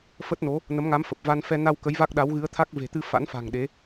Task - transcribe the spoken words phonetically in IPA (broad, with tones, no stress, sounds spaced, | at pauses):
f ə˦˥ t̚ n o˨˦ | n ə˨˦ m ŋ a˨˦ m f ə˨˩ p̚ v a˧ n f ɛ˧ n a˧ w k ə˨˦ j v a˦˥ k̚ ɗ a˨˦ w ɣ ɨ˨˦ ə̯ t̪ʰ a˦˥ k̚ v e̤˨˩ t̪ ɨ˧ f a̰˧˥ n f a̤˨˩ ŋ ɗ e˨˦